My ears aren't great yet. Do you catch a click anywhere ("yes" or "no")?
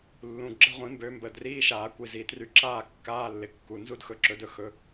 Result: yes